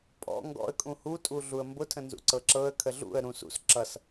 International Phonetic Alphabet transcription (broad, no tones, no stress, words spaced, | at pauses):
pʼɔ̰ ŋɡɔ̰ə̯ kʼũhu tʼuɮuə̯mbʊ tʰə̃nzṵǀɤǁɤə̯ kʰəɮṵə̯ ɾũs ṵs ǁʌs